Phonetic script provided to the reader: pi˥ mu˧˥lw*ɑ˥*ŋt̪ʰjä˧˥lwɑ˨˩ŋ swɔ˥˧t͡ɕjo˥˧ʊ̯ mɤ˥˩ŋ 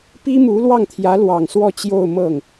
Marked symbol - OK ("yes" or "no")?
no